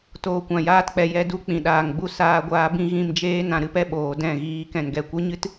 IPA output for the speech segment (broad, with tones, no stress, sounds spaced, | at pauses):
t oː˨ kʷ ã˨ j aː˧ t k͡p ɛ˨ j ɛ˧ d u˧ k͡p ĩ˨ ɗ aː˨ ŋ ɡ͡b u˧ s aː˧ ɡʷ aː˧ b ĩ˦ ɣ ĩ˧ m d͡ʒ eː˦ n ã˧ ɾ ɨ˦ p ɛ˦ ɓ oː˨ d ɛ̃˦˨ ɣ iː˧ k ɛ̃˨ n ɡ ɛ˨ kʷ ɨ˦ ɲ ɨ˦ t